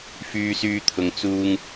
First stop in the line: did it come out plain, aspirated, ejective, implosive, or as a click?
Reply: aspirated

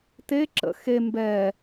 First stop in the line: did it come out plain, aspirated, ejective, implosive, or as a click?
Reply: plain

